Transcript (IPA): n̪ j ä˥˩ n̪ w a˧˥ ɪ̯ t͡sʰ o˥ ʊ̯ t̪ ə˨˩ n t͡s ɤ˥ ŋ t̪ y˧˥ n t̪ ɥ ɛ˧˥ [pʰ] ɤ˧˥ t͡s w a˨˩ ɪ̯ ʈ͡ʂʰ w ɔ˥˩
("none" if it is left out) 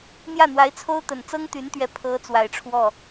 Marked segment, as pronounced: pʰ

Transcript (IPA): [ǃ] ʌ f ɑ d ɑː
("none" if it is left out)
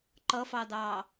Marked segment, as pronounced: ǃ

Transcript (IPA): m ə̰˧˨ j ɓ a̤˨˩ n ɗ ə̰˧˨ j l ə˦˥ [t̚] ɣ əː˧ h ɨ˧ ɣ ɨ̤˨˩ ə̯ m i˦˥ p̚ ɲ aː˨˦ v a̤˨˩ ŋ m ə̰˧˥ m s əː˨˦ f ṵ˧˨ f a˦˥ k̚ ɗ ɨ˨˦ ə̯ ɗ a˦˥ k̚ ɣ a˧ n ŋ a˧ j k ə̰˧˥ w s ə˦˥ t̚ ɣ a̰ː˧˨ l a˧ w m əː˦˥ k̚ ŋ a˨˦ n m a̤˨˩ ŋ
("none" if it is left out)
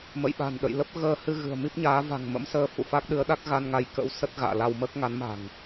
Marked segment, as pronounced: p̚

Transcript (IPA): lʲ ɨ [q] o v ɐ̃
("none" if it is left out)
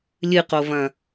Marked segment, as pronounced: q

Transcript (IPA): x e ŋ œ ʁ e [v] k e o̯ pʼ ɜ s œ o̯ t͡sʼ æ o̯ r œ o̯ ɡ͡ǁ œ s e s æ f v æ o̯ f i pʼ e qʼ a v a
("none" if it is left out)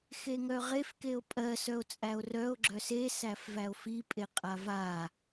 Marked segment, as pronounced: f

